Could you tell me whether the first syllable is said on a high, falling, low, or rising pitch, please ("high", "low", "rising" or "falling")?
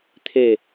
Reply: falling